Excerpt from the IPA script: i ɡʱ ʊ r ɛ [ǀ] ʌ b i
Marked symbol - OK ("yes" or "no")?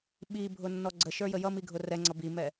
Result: no